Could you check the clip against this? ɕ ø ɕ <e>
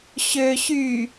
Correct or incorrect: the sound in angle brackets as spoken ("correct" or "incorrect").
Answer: incorrect